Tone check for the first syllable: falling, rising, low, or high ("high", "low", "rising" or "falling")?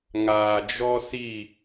low